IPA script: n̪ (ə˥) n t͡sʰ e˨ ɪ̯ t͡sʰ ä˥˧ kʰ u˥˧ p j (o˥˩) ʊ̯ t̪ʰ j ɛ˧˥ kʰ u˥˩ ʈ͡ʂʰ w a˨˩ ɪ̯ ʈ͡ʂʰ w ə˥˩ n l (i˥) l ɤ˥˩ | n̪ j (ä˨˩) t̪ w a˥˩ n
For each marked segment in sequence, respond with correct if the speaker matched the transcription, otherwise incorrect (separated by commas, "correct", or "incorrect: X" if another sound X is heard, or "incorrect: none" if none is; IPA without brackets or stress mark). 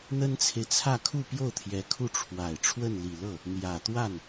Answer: correct, correct, incorrect: i˨˩, correct